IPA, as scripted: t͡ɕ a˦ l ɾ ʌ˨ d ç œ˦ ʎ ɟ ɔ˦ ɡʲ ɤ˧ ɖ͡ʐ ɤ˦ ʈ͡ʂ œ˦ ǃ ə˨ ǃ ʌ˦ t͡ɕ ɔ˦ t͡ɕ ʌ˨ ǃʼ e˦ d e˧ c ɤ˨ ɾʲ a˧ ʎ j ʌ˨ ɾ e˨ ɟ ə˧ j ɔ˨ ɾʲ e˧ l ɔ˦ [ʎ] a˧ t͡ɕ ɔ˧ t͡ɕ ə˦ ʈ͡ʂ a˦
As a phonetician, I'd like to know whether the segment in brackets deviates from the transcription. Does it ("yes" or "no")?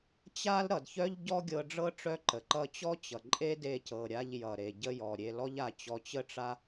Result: no